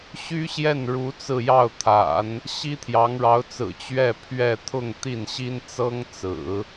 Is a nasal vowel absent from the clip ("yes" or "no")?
yes